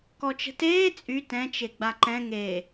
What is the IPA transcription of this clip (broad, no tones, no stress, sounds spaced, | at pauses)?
k ɔ t͡ʃ ə̤ t eː t͡sʼ y t ɛ̃ t͡ʃ e ɡ͡b a ǃ ɛ̃ ŋ e